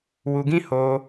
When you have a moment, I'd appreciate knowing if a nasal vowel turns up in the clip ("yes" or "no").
yes